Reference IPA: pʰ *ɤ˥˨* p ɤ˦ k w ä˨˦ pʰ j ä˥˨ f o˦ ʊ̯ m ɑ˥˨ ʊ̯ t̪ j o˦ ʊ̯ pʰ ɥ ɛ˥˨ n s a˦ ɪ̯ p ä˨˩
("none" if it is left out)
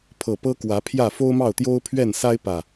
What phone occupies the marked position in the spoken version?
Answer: ɤ˨˩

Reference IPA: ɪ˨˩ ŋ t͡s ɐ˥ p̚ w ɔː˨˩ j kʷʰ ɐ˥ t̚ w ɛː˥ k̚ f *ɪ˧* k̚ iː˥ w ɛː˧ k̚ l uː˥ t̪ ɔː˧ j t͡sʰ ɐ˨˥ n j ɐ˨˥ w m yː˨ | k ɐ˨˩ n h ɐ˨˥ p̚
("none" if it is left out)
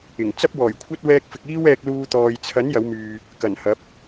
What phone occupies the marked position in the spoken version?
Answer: ɪ˧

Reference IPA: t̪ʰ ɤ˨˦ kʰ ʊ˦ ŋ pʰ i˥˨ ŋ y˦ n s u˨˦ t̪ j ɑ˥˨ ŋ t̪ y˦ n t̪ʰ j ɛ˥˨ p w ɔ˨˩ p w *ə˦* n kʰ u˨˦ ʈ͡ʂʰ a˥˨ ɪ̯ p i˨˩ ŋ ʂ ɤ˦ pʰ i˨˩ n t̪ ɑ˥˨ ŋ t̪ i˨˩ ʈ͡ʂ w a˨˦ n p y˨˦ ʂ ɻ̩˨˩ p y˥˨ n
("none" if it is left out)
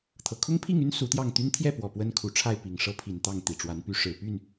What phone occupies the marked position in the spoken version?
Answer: ə˦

